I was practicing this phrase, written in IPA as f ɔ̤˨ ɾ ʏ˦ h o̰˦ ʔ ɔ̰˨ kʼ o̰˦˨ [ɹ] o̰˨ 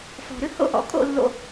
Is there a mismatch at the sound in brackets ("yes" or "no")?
yes